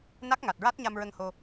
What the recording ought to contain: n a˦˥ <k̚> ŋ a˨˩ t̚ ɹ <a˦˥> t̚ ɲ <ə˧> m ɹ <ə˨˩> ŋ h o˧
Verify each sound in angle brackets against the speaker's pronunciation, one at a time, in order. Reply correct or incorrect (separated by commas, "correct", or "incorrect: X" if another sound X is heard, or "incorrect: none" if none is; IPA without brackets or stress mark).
correct, correct, incorrect: a˧, incorrect: ə˧